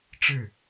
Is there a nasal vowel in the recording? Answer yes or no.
no